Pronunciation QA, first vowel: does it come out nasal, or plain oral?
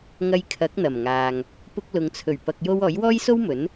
oral